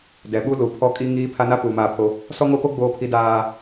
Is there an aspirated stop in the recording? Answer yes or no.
yes